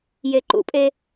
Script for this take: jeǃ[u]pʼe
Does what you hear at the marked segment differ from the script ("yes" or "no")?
yes